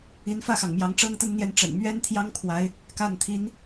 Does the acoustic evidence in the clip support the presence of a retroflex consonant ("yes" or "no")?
yes